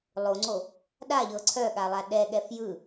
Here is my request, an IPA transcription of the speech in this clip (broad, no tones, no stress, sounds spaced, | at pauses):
lˠ o ŋ͡ǀ o | ɗ a ʎ ɤ ǀʰ œ ɠ a lˠ a ɗ ɛ ɠ ɛ f j ɯ